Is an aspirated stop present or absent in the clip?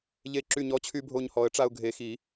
present